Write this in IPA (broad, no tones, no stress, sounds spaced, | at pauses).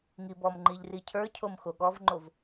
ŋ i b ɔ m ŋ͡ǃ i ʎ r i cʰ ə˞ cʰ o m x o ɠ ɔ v ŋ͡ǃ o v